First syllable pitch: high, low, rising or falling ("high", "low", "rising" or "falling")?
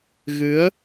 rising